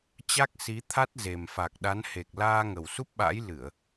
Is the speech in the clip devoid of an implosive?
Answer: no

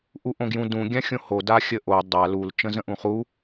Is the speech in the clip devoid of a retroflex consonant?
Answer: yes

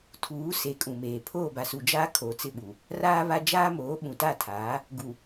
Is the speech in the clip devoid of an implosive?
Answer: no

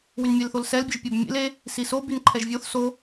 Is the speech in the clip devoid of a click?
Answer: no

